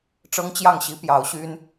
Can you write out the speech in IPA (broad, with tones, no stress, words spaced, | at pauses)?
ʈ͡ʂɤ˥ŋt͡ɕjɑ˥˩ŋɕi˥ pjɑ˧˥ʊ̯ɕy˥n